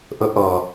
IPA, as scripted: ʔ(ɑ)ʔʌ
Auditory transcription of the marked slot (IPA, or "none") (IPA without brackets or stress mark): ə